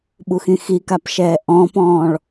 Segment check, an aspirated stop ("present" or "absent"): absent